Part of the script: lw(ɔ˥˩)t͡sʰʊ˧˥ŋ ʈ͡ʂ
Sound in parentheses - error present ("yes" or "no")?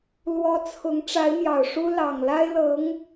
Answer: yes